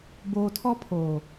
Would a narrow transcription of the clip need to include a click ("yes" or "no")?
no